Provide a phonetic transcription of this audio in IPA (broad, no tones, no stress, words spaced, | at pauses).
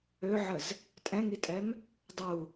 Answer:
øʕəz | tʼɛ̃ŋitʼɛm | dˤu